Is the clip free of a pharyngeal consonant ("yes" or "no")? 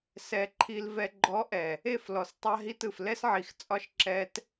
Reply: no